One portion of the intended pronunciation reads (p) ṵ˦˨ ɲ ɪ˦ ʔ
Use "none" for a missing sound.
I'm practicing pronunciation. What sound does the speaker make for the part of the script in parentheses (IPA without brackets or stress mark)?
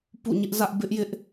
p